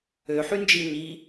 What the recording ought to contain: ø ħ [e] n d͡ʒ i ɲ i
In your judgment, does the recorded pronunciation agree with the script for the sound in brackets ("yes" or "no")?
no